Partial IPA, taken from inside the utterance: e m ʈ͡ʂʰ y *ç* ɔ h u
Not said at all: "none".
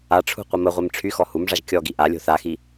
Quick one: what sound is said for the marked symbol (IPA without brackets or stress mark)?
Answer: x